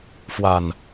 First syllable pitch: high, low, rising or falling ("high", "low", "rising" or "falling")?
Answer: low